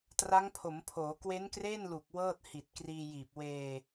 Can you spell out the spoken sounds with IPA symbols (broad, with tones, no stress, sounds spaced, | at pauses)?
t r a˦˥ ŋ pʰ o˩˦ m pʰ oː˩˦ k w e˦˥ n k r eː˥˩ n l u˨˩ k̚ w ɤː˥˩ t̚ h i˨˩ t̚ k r iː˧ j iː˨˩ p̚ w eː˧